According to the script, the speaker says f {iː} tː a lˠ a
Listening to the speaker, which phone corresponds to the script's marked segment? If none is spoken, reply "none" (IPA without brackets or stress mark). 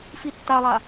i